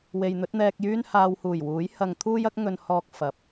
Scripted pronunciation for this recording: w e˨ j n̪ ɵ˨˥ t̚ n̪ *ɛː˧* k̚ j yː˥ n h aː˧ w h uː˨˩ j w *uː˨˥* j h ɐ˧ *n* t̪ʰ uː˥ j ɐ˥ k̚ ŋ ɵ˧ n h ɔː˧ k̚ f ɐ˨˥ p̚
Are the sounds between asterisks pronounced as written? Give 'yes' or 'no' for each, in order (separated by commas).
yes, yes, no